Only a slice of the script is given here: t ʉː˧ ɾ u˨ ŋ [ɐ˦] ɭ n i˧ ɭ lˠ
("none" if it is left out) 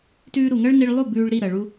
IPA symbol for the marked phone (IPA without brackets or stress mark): ɐ˦